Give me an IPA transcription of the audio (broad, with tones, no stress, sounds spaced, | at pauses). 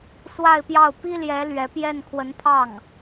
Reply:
s w a˥˧ ɪ̯ p j ɑ˥˩ ʊ̯ p i˥ l j ɛ˧˥ l ɥ ɛ˧˥ p j ɛ˥˩ n kʰ w ə˧˥ n pʰ ɑ˥˩ ŋ